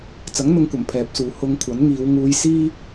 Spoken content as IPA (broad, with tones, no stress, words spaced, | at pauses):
t͡sɐ˨˥ŋn̪ʊ˧ŋkʷɐ˨˩m pʰɛː˨p̚suː˨ hʊ˨˧ŋ kʷʰɐ˨˥nŋiː˨˧w ŋuː˧jsiː˥